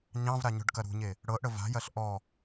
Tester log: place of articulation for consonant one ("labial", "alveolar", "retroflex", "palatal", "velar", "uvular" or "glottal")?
palatal